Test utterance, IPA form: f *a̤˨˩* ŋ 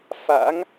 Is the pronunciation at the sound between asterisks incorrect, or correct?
incorrect